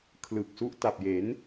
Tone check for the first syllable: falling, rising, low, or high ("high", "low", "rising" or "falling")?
low